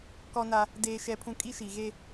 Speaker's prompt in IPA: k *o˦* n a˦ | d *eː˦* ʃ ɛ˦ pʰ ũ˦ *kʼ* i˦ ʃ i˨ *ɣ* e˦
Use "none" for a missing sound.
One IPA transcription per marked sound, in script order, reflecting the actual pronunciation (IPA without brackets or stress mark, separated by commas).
ɔ˦, eː˦, kʼ, ɣ